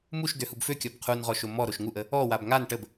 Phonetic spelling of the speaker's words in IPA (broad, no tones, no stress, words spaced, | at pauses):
muʃdøhub føkʲɔb qʰunʁɔʃo mɔɾoʃ ŋuʔə | ɔwab ŋan ʈəb